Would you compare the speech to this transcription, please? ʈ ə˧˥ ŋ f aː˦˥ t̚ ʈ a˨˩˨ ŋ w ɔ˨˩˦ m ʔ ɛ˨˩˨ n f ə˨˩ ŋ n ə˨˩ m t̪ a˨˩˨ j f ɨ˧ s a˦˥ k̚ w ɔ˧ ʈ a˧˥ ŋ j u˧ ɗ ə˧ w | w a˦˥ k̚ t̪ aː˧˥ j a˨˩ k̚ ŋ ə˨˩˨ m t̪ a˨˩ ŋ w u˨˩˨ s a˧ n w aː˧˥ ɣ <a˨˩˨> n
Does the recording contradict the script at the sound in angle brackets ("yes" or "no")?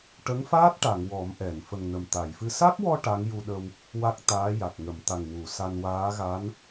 yes